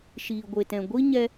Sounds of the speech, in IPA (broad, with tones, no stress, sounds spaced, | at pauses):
ʃ iː˨ ɡʷ e˨ t ɛ̃˨ ɡʷ i˦ ɲ ɛ˦